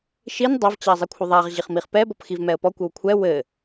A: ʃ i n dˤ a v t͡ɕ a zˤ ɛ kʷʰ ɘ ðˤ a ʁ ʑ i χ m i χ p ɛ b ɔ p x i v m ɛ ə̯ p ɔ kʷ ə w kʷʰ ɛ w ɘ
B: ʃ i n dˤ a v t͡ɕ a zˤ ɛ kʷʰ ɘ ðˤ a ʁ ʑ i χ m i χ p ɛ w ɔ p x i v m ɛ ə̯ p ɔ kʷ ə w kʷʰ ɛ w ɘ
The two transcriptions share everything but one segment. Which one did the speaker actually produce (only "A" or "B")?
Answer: A